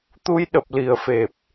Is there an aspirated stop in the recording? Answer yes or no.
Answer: no